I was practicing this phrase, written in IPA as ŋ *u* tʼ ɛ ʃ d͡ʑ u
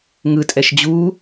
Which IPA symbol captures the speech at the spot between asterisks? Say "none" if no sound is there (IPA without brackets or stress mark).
ɯ